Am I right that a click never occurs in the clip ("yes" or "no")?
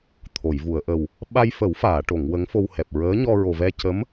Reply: yes